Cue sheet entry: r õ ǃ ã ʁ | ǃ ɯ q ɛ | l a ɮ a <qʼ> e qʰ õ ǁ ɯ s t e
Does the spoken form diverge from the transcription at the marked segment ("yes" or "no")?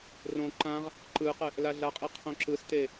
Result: no